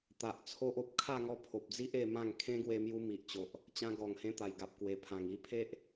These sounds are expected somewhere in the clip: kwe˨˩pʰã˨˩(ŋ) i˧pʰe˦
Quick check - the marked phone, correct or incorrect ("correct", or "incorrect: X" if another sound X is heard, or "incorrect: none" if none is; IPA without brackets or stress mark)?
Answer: correct